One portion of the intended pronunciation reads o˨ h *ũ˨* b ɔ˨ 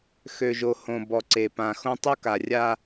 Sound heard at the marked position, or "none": õ˨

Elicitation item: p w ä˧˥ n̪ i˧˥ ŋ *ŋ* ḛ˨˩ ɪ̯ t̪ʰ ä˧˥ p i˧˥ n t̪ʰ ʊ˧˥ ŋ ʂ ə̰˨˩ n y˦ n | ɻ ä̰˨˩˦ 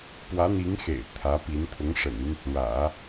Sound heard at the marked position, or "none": x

